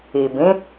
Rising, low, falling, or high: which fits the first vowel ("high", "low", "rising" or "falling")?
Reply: low